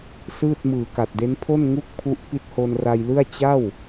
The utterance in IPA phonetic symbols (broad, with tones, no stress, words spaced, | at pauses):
sɯː˥˩t̚ mɯː˨˩ka˨˩t̚de˦˥npʰo˥˩n ŋu˥˩k̚pʰu˦˥ʔ pi˦˥t̚ho˧nra˧jlɯ˥˩a̯ t͡ɕa˥˩w